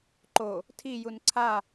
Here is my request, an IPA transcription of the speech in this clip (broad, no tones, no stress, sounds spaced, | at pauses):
ǃ o | tʰ i j u n ǀʰ a